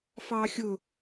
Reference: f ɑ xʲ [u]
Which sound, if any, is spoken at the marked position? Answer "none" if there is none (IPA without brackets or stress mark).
ʊ